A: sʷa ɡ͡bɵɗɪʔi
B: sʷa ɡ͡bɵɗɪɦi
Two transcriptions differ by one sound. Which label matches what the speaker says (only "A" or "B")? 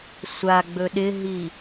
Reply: B